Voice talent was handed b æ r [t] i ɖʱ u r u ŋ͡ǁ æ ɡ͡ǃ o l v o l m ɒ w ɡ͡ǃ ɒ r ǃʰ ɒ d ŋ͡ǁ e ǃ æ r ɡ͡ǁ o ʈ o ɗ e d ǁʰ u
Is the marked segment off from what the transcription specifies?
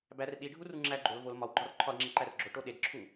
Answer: yes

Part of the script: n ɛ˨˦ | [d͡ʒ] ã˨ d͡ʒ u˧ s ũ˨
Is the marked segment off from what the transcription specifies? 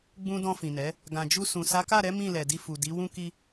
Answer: yes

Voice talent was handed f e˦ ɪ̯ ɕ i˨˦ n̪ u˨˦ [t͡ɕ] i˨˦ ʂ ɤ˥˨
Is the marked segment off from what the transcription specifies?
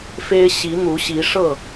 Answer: yes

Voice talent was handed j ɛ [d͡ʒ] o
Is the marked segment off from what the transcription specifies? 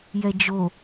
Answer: no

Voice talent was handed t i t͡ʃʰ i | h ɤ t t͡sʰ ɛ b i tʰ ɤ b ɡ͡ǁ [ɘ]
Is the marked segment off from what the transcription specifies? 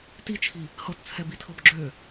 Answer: yes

